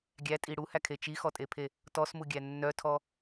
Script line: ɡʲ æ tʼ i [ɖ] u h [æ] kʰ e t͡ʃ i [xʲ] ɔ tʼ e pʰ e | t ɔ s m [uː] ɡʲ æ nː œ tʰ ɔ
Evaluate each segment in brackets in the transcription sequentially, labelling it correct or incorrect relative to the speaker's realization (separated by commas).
incorrect, correct, incorrect, incorrect